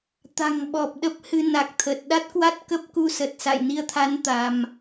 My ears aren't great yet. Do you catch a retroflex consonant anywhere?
no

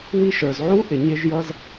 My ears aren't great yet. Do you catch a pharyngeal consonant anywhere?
yes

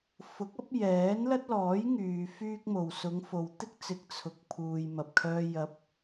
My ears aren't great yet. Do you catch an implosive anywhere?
no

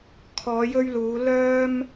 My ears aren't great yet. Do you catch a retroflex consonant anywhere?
no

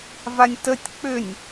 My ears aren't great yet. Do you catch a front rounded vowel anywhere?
yes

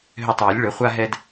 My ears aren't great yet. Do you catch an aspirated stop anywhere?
no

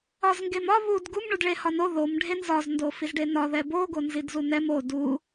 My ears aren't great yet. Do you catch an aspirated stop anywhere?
no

